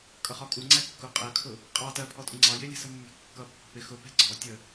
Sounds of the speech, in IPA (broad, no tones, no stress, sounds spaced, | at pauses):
kʼ ʌ χ ɒ kʼ u ŋ͡ǀ æ kː ʊ qʼ ɜ kʰ ʊ | qʼ ɑ t ɜ pʰ ɔ tʼ ʊ ŋ͡ǀ ɑ j ɪ lʲ ɛ̤ s ə mː ɛ̤ kː ʌ pː ə̤ p ɪ x ʊ p ɛ̤ ɡ͡ǀ ɔ tʲ ə